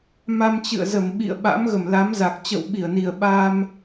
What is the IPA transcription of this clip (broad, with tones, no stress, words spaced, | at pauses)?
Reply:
ma˧mt͡ɕɨ̰˧˨ə̯zə˧˩m ɓḭ˧˨ə̯ɓa̰˧˥mɣə˧˩m la˨˦mza˨˩k̚ t͡ɕə̰˧˨wɓi˧˩ə̯ni˨˩ə̯ ɓa˧m